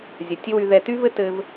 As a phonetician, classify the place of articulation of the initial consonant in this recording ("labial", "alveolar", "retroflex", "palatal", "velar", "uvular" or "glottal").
alveolar